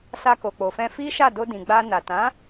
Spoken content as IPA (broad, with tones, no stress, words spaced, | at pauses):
sa˧ko˨k͡po˨fɛ̃˧ fi˦ʃa˦˨ do˧dĩ˨ ɡ͡ba˧na˨ tã˨˦